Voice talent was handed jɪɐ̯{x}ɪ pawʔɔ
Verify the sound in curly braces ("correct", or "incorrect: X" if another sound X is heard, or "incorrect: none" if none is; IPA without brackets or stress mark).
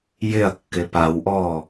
incorrect: kː